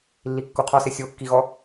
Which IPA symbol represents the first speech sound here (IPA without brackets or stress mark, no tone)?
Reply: lː